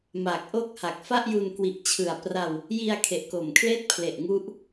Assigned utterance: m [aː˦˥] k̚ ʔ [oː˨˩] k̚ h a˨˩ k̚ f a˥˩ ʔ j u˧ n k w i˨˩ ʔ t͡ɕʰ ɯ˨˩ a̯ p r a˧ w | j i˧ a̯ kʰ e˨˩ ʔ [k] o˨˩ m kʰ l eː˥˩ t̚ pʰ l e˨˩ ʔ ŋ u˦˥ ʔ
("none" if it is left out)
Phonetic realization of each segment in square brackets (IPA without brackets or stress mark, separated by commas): aː˨˩, oː˥˩, k